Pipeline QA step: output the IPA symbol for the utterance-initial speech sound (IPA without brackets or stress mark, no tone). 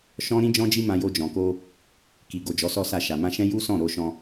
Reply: ʃ